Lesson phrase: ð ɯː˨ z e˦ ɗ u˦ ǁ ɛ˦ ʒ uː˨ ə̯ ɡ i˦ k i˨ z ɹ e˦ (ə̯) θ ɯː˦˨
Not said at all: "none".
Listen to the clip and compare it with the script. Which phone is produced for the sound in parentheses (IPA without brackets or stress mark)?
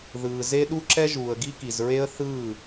ə̯